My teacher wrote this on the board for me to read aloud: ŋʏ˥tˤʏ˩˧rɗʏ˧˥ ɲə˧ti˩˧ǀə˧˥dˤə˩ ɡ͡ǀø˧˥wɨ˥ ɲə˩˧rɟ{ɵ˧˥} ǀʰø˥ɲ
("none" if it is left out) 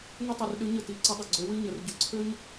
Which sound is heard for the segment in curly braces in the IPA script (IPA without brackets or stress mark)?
ə˧˥